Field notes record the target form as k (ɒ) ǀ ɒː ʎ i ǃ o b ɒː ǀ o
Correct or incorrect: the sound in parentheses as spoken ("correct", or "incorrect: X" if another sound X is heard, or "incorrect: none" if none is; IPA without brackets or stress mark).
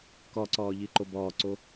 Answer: correct